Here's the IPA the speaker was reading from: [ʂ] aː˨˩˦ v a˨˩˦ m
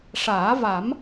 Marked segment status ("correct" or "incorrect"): correct